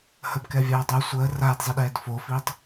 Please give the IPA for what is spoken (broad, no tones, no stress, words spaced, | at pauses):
həbkɛvʲaː dˤo sʷəː raːdzˤiɗɛːd fofiːtˤ